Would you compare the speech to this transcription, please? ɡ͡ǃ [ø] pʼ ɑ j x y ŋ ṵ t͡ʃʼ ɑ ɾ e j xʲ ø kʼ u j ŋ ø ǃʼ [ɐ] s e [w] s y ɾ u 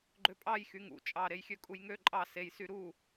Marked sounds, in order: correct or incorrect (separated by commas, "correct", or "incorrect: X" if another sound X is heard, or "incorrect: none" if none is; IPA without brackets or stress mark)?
correct, incorrect: ɑ, incorrect: j